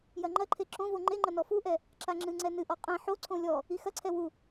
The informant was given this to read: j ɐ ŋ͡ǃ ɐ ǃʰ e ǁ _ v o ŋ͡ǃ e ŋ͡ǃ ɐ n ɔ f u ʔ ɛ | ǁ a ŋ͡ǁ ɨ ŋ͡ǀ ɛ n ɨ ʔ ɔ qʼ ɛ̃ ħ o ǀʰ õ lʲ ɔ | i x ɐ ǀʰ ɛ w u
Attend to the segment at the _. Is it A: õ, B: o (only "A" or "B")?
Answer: A